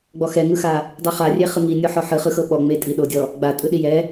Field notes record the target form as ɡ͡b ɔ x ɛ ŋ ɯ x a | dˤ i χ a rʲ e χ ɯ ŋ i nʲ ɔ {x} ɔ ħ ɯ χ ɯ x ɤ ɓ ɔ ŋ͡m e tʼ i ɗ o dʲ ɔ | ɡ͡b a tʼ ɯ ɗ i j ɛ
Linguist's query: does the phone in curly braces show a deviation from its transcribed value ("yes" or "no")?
yes